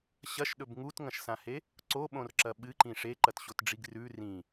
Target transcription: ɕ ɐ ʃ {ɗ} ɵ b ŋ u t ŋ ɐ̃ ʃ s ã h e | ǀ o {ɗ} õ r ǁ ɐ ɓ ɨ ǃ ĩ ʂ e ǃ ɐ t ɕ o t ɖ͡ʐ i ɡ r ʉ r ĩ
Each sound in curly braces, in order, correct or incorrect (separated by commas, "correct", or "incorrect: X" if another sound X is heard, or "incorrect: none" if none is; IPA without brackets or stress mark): correct, incorrect: ɓ